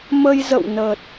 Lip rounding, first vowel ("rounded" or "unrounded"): unrounded